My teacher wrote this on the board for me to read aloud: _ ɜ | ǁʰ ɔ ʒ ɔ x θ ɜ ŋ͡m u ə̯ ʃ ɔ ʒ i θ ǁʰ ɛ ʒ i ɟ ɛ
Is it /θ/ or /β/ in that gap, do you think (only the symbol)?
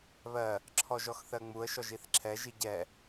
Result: β